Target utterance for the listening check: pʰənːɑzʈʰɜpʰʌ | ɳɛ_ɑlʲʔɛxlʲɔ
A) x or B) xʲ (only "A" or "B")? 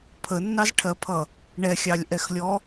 B